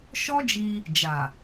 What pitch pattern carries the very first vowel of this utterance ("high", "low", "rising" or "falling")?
high